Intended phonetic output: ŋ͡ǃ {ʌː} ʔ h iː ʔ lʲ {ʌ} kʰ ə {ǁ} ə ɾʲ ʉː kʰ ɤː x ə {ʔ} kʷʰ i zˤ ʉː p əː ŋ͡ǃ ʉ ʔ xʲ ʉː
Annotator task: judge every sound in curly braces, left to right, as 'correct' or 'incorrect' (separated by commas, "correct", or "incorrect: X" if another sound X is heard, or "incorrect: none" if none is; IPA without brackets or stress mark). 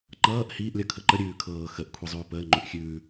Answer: correct, correct, incorrect: ǃ, correct